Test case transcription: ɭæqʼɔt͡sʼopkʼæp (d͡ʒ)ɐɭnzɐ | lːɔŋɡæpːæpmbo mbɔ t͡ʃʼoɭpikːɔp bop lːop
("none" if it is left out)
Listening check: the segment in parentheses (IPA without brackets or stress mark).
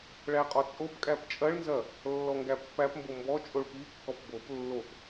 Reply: t͡ʃʼ